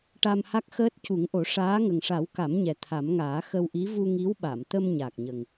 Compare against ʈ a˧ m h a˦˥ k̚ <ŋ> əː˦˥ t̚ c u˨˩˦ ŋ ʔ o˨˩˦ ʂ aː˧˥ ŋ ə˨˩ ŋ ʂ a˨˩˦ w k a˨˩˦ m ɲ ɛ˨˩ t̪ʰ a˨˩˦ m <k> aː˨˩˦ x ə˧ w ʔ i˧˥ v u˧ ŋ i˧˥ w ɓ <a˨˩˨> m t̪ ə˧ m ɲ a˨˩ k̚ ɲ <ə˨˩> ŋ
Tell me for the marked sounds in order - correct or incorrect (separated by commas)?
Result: incorrect, incorrect, correct, correct